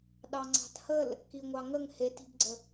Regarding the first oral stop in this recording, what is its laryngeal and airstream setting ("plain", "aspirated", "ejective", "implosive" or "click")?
implosive